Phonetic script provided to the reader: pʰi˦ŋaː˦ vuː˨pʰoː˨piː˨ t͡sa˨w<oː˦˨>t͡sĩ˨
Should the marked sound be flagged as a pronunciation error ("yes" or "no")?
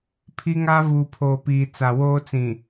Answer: yes